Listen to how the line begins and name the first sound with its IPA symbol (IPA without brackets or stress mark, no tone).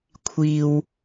kʷʰ